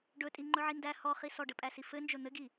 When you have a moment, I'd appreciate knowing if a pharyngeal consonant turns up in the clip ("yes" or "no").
yes